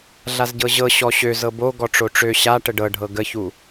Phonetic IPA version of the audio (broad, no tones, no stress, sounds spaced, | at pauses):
ɮ a z ɟ ɤ ʑ ɤ ɕ ɔ ɕ ø z ɤ b o ɡ ɔ ʈ͡ʂ o ʈ͡ʂ ø ɕ a ʈ ə ɖ ɤ ɖʱ ɤ ɡ ə ç u